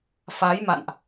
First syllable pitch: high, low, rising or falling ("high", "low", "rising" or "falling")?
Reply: rising